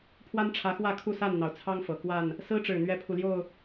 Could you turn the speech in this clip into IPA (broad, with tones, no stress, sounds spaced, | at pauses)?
pʰ w a˦ n ʈ͡ʂʰ ä˨˦ x w ä˥˨ kʰ u˥˨ s a˥˨ n n̪ ɑ˩ ʊ̯ t͡sʰ ɑ˦ ŋ f ɤ˨˩ k w a˥˨ n | s ɹ̩˦ ʈ͡ʂ ɻ̩˨˩ n̪ ɥ ɛ˦ pʰ u˨ l j o˥˨ ʊ̯